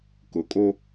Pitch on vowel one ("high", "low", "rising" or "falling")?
low